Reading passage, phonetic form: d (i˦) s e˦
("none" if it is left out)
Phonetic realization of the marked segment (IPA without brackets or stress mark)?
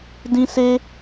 ĩ˦